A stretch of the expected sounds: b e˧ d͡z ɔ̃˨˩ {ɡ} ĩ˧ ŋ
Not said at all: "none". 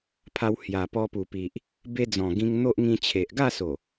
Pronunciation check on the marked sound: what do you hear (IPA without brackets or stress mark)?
ɡ